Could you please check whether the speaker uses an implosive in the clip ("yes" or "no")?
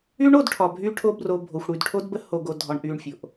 no